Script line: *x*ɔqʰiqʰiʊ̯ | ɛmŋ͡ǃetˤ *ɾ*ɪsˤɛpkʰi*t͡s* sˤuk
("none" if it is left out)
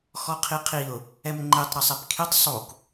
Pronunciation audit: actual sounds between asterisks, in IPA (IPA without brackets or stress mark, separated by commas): x, ɾ, tˤ